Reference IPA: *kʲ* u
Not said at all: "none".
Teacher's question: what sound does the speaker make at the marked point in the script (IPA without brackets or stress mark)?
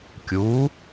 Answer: kʲ